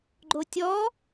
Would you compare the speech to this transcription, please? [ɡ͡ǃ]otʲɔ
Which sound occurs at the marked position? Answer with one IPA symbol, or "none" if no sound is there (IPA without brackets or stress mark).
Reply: ɡ͡ǃ